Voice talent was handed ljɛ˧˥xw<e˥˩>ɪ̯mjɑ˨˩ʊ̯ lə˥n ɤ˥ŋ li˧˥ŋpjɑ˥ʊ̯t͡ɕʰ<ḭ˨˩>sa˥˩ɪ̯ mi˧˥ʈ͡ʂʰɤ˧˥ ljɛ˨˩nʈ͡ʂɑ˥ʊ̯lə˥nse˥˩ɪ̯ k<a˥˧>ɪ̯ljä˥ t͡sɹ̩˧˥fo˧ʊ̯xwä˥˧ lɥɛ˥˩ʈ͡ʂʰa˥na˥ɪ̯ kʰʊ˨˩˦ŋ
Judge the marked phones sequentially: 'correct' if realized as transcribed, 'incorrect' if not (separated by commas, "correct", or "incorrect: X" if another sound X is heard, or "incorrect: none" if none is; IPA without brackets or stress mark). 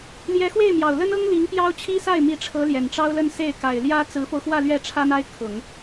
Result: correct, incorrect: i˥, incorrect: a˨˩